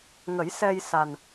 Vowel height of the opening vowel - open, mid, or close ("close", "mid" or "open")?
mid